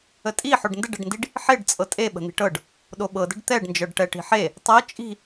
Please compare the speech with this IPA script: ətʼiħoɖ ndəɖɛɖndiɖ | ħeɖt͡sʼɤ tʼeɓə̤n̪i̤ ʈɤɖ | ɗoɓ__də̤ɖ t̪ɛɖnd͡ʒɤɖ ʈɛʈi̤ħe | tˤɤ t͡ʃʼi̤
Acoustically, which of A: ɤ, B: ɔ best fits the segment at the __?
A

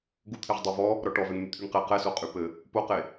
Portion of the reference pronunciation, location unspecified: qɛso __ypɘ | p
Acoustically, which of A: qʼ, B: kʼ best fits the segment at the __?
A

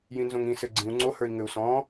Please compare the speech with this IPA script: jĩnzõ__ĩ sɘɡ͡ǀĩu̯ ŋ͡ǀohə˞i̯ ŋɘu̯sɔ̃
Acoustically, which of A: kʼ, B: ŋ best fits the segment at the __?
B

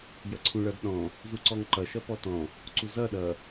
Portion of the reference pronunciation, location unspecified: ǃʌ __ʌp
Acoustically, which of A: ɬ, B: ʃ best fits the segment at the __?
B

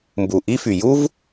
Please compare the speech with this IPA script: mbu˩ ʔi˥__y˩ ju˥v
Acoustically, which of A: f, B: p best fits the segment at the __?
A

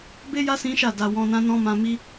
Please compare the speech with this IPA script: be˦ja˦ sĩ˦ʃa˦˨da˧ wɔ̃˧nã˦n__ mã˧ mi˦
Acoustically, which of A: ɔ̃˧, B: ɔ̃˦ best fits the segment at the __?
B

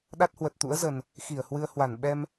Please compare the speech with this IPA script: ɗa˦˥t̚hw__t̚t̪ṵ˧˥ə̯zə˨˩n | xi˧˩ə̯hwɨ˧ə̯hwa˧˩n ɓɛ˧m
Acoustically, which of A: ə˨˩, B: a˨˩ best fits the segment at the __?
A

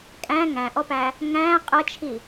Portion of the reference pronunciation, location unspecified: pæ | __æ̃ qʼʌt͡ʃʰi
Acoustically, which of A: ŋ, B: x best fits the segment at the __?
A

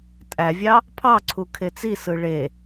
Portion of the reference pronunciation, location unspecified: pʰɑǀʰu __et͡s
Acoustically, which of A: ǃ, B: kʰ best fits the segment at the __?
B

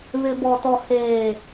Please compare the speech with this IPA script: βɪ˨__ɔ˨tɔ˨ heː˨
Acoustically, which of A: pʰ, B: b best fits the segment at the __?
B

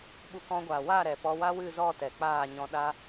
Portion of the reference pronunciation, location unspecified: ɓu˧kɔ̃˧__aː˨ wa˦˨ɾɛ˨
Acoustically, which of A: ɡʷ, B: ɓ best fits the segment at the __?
A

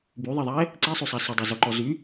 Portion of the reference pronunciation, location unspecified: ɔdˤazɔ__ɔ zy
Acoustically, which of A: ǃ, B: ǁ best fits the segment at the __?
A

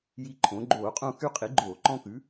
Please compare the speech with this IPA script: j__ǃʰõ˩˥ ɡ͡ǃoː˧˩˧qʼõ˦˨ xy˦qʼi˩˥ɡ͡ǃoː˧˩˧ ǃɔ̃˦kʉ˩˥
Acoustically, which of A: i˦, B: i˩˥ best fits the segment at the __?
A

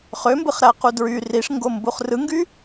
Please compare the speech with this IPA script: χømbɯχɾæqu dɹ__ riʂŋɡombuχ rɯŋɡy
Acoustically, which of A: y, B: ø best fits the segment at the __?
A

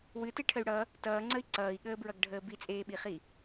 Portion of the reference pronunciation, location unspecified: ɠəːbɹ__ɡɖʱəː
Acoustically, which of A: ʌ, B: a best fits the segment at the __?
A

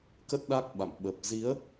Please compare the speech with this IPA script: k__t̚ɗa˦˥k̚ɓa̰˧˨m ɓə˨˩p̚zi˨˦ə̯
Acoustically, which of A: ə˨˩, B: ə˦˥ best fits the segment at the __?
B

